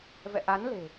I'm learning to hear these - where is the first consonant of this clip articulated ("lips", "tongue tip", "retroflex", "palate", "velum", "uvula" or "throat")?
lips